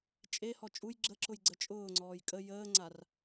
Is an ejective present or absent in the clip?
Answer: present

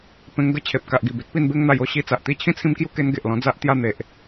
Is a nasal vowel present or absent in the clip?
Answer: present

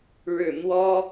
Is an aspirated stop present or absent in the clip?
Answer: absent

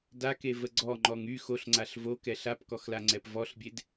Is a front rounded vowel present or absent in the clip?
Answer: present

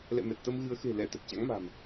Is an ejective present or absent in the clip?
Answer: absent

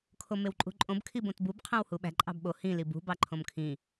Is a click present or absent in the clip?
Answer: present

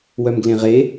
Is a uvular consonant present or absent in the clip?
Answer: present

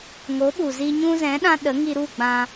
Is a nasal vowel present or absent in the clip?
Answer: present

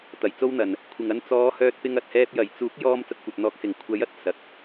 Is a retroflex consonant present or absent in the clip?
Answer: absent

